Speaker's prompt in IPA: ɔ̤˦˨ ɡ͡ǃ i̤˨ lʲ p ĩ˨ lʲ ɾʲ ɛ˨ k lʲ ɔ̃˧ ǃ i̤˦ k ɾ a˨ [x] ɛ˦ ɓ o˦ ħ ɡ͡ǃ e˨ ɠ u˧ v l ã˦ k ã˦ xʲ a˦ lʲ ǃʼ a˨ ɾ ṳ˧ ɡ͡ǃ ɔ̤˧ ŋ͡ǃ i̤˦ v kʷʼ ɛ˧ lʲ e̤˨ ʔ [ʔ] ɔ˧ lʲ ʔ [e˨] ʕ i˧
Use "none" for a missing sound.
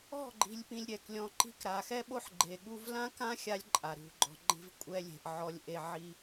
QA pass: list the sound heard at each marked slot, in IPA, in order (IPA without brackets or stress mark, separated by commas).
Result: x, ʕ, e˧